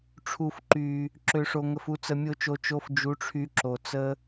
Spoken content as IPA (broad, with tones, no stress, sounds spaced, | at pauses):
ʈ͡ʂʰ u˨ f ǃ y˨ | ǁ ø˨ ʂ o˨ ŋ ə˨ f u˧ t͡s ə˧ mʲ o˦ t͡ʃ o˧ t͡ʃ o˧ f d͡ʒ u˨˦ ʈ͡ʂʰ y˧ ǁ o˨ t͡s ə˧